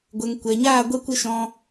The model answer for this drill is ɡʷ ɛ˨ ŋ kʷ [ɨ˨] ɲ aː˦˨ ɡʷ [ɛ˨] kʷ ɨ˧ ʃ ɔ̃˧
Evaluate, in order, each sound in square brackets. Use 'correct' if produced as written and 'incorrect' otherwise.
incorrect: ɛ˨, incorrect: ɛ˧

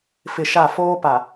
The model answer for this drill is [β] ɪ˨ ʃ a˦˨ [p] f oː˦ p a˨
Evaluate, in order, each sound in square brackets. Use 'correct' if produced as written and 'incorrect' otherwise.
incorrect: f, incorrect: none

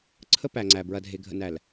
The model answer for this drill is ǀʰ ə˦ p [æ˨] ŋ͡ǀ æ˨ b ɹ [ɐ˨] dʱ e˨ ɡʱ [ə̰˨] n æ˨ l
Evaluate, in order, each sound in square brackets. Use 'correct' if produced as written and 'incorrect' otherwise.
correct, correct, correct

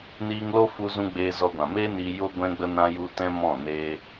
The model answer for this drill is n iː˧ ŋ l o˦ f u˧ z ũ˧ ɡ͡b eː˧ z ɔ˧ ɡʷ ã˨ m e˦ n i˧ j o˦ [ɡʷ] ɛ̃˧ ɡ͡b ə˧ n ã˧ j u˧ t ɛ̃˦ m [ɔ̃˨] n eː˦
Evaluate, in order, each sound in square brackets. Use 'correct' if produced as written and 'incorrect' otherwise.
correct, incorrect: ɔ̃˦˨

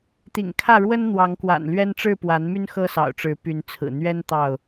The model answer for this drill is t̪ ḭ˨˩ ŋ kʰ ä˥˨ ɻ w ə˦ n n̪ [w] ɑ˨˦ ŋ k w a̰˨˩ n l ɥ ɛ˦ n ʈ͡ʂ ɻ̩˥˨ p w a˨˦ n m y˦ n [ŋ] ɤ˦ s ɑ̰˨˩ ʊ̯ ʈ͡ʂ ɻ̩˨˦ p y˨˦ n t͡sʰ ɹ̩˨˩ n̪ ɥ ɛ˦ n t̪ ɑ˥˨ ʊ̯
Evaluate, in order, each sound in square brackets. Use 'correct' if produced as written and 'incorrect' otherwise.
correct, incorrect: x

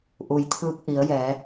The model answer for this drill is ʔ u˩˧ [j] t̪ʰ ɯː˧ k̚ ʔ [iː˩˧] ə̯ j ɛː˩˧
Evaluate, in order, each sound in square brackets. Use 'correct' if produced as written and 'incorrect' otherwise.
correct, incorrect: i˩˧

